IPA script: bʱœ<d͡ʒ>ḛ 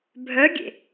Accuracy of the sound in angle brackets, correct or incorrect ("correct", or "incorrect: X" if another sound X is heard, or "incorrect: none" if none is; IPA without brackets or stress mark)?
incorrect: ɡʲ